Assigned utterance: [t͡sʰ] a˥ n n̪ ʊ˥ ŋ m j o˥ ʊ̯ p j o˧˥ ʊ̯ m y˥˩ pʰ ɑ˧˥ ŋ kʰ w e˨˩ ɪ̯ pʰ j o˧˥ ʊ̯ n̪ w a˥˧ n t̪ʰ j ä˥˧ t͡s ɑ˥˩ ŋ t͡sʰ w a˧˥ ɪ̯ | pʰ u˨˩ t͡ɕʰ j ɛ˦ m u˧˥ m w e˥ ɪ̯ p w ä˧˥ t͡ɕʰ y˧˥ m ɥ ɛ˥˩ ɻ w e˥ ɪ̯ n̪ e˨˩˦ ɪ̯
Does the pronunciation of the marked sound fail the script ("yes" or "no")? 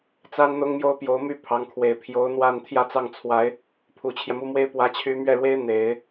yes